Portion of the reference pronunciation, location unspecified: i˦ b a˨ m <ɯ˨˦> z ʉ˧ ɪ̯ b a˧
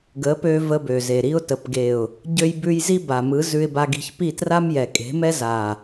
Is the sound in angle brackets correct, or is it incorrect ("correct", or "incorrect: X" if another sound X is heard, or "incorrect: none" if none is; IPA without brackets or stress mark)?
correct